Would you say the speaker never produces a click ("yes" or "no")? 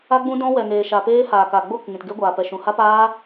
yes